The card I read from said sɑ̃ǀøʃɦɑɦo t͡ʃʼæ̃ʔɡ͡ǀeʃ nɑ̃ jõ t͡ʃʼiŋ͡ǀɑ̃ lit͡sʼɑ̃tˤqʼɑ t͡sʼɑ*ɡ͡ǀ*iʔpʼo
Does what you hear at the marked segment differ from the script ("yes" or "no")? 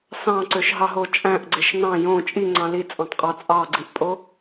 no